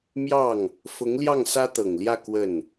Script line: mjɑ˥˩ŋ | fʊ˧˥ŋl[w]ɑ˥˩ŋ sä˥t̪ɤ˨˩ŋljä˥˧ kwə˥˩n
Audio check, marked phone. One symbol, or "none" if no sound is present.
j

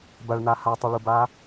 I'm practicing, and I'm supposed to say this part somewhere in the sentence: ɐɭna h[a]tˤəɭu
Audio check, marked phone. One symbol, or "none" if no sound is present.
a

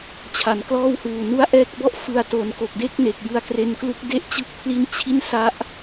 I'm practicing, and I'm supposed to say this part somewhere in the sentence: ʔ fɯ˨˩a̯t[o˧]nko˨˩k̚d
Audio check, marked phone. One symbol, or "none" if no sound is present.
o˩˦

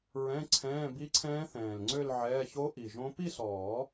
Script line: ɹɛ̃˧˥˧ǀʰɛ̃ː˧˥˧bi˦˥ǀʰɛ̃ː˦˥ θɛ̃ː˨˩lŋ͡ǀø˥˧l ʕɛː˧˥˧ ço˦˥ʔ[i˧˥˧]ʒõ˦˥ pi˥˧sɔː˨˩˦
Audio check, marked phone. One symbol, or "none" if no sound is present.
i˨˩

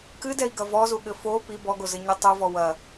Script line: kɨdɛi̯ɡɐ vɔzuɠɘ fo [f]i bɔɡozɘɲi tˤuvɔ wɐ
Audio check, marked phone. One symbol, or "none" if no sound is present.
p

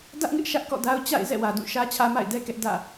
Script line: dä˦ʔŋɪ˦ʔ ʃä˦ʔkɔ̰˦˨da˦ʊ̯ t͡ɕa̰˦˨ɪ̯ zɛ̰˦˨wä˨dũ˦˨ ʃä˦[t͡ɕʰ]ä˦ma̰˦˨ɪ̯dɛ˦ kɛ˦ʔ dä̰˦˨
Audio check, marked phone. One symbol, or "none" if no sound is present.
t͡ɕʰ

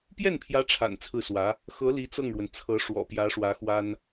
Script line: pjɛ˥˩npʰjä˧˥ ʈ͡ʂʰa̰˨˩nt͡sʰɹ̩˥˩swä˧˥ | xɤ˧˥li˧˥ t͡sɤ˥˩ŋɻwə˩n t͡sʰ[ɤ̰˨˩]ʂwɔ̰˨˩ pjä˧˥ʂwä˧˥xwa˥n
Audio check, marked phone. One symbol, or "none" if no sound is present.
ɤ˧˥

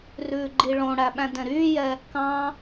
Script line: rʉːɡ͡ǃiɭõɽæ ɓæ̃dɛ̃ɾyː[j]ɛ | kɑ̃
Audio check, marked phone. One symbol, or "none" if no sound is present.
j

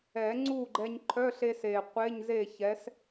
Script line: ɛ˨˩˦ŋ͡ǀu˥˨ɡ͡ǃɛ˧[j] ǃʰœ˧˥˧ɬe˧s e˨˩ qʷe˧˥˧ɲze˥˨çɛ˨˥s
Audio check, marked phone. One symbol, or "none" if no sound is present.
ɲ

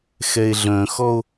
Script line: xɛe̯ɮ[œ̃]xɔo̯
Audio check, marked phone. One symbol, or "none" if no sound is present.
œ̃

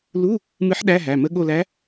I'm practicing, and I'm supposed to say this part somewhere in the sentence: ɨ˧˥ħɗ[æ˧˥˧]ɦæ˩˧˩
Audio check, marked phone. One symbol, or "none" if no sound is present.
æ˧˥˧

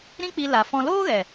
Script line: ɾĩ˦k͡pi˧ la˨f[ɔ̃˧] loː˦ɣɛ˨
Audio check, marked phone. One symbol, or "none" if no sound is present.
ɔ̃˧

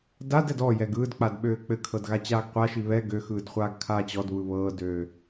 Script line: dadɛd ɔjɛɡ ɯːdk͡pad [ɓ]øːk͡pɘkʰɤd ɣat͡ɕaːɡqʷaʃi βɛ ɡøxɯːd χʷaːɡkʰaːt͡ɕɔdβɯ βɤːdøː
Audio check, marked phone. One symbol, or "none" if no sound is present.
ɓ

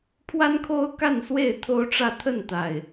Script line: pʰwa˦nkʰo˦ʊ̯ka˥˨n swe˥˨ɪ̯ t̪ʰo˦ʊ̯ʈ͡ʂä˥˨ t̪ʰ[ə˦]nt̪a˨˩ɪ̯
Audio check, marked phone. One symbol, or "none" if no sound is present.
ə˥˨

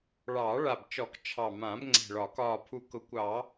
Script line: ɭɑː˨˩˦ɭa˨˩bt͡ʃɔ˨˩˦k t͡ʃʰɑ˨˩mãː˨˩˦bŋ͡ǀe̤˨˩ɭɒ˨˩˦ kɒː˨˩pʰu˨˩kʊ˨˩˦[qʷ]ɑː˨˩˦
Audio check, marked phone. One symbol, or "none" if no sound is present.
kʷ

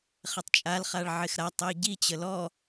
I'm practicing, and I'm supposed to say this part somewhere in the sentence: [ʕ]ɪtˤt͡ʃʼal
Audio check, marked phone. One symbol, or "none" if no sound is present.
χ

